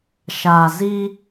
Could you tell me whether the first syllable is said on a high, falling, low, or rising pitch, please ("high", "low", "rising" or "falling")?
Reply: low